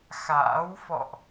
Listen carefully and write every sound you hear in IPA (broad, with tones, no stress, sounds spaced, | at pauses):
x a̰ː˧˥ w f ɔ̰˧˨ ʔ